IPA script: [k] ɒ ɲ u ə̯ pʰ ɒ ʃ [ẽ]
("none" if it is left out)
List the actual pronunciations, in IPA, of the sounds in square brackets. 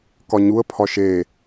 k, e

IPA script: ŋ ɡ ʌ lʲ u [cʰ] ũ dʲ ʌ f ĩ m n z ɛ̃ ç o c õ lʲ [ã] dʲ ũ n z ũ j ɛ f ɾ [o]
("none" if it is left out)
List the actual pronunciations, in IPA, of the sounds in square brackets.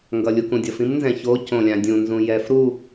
k, ã, u

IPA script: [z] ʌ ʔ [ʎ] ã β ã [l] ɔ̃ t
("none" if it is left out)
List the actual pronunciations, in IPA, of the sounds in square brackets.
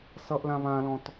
s, l, l

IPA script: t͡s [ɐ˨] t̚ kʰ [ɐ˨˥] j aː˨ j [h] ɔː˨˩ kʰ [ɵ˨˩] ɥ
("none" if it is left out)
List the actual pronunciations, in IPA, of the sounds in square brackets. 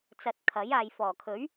ɐ˧, ɐ˨˥, f, ɵ˨˥

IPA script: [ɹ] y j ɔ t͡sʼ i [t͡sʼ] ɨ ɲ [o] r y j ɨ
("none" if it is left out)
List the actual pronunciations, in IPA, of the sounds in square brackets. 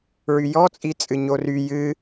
ɹ, t͡sʼ, o

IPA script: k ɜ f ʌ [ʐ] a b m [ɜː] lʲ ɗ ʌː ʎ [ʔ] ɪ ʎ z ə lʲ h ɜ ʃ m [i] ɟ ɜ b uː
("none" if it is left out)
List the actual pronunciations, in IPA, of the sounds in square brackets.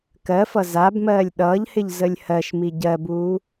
z, ɜː, h, i

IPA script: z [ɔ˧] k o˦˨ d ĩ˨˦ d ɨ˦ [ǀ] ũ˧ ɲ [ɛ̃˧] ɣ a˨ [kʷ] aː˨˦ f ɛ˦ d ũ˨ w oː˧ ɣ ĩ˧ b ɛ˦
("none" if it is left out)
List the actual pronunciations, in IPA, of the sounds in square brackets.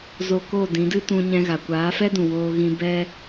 o˧, t, ɛ̃˧, kʷ

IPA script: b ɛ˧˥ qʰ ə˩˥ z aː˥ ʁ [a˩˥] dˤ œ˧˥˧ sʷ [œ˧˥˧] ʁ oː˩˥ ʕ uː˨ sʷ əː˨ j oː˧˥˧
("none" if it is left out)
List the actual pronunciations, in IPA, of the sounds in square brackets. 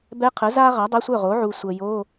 a˩˥, œ˥˩

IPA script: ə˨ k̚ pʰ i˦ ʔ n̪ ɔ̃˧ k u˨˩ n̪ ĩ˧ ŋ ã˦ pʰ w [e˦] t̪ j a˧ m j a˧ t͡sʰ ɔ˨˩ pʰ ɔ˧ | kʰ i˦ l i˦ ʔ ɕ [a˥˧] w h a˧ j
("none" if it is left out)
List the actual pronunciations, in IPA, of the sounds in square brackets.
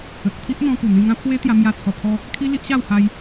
e˦, a˥˧

